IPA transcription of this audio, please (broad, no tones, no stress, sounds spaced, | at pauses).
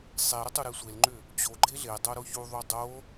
sˤ e ɾ ʏ tˤ u ɾ e sʷ e l ŋ͡ǃ ʏ | t͡ɕ o ɡ͡ǃ e ɮ e dˤ o ɾ o ç u ðˤ u dˤ o